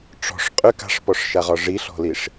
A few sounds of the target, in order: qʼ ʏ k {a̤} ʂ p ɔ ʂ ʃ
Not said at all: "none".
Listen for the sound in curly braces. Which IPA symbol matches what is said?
a̤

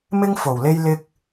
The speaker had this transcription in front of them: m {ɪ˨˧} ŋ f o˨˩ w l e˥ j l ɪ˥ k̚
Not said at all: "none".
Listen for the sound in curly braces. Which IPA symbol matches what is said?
ɪ˥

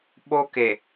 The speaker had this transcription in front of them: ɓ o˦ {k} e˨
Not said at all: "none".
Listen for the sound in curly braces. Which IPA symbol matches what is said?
k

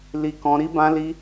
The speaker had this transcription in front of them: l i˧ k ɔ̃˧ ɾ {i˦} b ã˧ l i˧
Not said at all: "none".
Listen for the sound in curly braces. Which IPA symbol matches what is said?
i˧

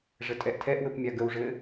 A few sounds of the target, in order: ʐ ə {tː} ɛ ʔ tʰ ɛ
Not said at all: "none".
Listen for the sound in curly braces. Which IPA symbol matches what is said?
tʼ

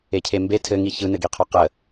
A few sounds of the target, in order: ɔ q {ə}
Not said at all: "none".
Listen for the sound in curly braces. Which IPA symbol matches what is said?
ə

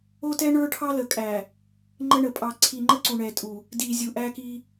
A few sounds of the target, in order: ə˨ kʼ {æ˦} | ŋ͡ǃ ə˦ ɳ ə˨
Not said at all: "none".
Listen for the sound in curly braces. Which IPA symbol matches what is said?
æ˨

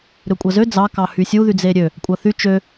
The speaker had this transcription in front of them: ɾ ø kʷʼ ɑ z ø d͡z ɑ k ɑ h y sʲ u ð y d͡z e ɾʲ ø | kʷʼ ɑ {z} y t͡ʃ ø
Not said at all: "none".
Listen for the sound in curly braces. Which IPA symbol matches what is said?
θ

